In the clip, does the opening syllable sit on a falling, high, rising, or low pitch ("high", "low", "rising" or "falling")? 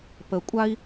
low